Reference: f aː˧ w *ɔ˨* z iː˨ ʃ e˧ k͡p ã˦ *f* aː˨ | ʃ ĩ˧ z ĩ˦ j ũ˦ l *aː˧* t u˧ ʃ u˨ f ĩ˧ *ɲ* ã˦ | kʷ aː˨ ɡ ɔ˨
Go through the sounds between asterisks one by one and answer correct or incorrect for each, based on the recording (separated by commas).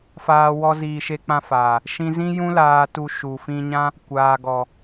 incorrect, correct, correct, correct